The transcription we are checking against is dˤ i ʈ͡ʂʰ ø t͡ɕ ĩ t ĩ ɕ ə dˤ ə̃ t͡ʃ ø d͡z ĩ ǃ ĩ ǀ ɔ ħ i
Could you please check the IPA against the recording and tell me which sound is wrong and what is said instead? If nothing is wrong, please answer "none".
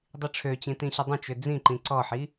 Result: none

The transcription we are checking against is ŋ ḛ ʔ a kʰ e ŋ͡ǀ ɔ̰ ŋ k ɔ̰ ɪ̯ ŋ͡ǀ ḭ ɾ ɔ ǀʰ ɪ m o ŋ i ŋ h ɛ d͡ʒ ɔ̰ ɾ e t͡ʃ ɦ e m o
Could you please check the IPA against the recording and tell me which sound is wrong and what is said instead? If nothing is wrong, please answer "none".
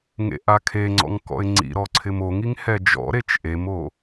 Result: ɦ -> ʔ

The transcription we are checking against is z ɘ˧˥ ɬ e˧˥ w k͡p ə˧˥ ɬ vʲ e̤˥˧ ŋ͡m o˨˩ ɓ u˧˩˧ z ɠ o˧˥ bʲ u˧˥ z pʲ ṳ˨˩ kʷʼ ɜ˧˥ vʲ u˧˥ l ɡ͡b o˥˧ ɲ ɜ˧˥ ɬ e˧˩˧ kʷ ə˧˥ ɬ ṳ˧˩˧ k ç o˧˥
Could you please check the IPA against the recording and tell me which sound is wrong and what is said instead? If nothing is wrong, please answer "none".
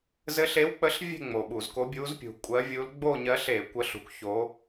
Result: ɠ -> k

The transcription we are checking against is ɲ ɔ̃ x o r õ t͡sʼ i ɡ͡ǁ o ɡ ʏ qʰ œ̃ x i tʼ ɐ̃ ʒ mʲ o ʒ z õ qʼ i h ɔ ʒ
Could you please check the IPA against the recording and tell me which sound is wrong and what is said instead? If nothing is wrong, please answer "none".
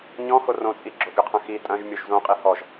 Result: none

